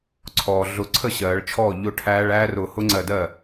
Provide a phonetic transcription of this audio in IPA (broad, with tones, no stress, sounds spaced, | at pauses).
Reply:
ǀʰ ɔː˩ ɮ ʊ˨˩˦ ǀʰ ə˥˩ ɕ ɜː˨˩˦ ɭ t͡ʃʰ ɔː˥˩ ʎ ʊ˥˩ ʈʰ æː˦˥ ɭ æː˦˥ r ʊː˧˩ h ʊ˦˥ ŋ͡ǀ ɜ˧˩ d ɜ˥˩